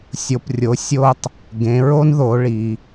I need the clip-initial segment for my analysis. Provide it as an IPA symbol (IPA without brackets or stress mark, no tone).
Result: sʲ